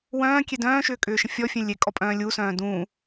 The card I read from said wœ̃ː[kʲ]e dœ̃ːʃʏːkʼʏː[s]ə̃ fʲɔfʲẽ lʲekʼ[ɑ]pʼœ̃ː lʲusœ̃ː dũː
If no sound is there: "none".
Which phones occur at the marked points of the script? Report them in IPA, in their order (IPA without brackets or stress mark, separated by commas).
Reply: kʲ, ʃ, ɔ